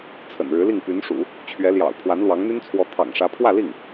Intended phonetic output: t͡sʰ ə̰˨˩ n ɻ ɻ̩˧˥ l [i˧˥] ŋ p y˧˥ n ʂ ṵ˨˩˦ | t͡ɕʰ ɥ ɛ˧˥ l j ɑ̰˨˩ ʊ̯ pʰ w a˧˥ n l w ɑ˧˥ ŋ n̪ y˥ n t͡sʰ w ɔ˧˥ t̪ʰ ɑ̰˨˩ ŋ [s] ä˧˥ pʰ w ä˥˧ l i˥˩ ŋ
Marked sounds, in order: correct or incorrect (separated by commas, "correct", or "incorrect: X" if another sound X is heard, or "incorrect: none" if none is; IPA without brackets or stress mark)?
incorrect: i˥˩, incorrect: ʂ